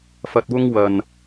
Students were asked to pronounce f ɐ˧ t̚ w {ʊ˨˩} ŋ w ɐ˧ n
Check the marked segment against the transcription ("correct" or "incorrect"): incorrect